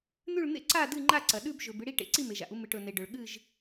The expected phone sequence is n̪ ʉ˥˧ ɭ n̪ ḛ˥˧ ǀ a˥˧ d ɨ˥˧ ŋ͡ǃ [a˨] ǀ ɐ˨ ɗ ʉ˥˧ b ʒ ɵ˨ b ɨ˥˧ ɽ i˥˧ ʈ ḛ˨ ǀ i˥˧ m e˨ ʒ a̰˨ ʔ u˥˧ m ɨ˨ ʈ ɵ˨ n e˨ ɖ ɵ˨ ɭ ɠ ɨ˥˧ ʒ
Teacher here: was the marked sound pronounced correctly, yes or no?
no